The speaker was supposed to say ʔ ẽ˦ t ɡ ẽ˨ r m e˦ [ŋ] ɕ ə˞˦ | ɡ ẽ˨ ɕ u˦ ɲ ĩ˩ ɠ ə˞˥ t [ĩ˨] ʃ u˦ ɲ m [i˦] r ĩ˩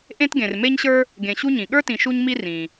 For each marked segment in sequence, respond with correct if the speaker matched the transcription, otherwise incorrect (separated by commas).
incorrect, correct, correct